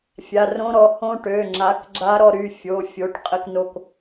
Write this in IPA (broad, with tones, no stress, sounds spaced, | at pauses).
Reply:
fʲ a˩˧˩ r õ˧˥ ɾ ɔ˩˧˩ h õ˧˥ ʈ ø˩˧˩ ŋ͡ǁ a˩˥ k ɡ͡ǁ a˧˥ ɾ ɔ˦˨ ɾ y˩˧˩ fʲ o˩˧˩ fʲ o˩˥ ʈ qʼ ɘ˦˨ k n o˦˨ k